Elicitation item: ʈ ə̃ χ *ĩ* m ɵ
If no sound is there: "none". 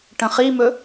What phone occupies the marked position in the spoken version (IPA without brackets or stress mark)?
i